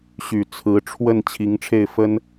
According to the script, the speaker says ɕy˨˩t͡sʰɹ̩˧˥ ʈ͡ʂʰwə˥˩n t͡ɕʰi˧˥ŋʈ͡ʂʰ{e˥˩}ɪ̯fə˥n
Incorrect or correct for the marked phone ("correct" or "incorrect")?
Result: correct